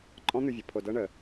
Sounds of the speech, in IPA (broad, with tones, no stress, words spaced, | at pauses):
ǃʼɔ̃˦n̪ʉ˧vʲɤ˨ pʰo˧dɤ˦ɳə˧